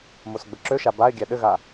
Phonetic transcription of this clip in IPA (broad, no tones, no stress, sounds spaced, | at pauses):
m o s ɡ͡b ə ǁ ø ʃ a b a ɪ̯ ɡʲ æ ɗ ɘ ɣ a